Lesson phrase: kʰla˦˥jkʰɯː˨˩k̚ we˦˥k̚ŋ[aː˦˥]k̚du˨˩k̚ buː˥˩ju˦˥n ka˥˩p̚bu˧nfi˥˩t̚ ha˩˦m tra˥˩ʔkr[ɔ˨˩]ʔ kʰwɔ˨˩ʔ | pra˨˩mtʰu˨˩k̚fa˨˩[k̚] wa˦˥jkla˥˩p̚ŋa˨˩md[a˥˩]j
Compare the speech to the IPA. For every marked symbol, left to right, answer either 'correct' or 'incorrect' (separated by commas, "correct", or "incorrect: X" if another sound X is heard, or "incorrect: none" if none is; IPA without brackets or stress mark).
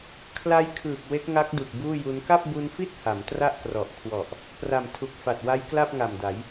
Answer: incorrect: a˦˥, correct, incorrect: t̚, incorrect: a˩˦